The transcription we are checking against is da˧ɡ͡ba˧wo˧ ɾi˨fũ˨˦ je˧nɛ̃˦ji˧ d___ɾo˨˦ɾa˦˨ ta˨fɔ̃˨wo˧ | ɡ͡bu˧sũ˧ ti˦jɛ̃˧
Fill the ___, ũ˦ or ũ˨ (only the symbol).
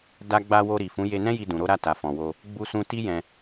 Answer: ũ˨